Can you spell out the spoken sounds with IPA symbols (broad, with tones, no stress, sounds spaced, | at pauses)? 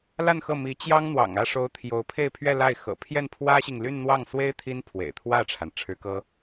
l a˥˧ n x ɤ˥˩ m i˧˥ t͡ɕ j ɑ˥ ŋ n̪ w ɑ̰˨˩ ŋ ä˥˩ ʂ o˧˥ ʊ̯ t̪ʰ j o˧˥ ʊ̯ pʰ e˥˧ ɪ̯ pʰ ɥ ɛ˥˧ l a˥˩ ɪ̯ x ɤ̰˨˩ pʰ j ɛ˥˩ n pʰ w ä˥ ɕ i˨ ŋ l y˥˧ n n̪ w ɑ˥˩ ŋ s w e˥ ɪ̯ t̪ʰ i˥ n pʰ w ḛ˨˩ ɪ̯ t̪ʰ w ä˥˩ ʈ͡ʂʰ a˩ n ʈ͡ʂʰ ɻ̩˧˥ k ɤ˥